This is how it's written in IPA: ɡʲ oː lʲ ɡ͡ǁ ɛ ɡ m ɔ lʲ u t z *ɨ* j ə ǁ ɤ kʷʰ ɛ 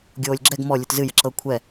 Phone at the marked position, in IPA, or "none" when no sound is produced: ɨ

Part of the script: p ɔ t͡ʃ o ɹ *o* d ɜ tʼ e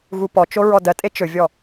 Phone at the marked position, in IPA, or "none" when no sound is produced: ɔ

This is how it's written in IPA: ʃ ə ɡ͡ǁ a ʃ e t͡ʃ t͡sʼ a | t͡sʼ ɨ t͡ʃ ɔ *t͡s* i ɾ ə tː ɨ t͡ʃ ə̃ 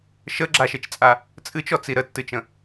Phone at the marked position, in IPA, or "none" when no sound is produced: t͡s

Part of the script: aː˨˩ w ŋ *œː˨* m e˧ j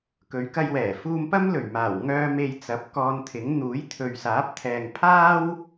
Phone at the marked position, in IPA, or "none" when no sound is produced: œː˧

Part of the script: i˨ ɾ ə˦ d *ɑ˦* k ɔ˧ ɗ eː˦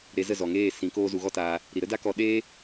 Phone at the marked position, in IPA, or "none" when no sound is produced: a˦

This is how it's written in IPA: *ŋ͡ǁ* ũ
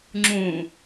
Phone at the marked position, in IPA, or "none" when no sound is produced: ŋ͡ǁ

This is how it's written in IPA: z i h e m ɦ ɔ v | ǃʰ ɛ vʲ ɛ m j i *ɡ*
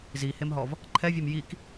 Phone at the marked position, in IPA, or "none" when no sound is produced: k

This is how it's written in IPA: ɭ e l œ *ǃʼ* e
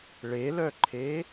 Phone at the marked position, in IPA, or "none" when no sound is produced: ǃʰ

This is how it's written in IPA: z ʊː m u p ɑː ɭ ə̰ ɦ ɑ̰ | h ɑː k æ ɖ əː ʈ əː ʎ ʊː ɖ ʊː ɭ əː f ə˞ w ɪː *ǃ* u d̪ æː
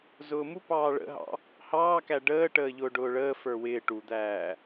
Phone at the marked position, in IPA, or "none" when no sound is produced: ʈ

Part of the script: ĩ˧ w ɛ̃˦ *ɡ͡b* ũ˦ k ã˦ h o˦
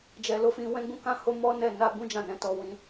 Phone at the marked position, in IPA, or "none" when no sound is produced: ɡ͡b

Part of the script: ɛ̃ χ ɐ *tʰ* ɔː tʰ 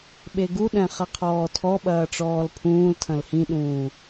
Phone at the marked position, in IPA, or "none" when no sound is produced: qʰ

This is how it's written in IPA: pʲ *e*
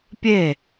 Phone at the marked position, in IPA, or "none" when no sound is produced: e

